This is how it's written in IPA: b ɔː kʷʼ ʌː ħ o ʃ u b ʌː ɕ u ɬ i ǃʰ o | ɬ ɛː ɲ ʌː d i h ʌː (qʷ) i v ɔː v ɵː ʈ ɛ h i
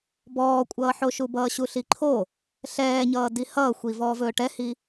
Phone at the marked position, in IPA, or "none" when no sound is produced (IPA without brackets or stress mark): xʷ